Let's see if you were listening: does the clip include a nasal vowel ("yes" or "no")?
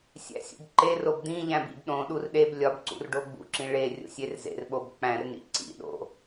yes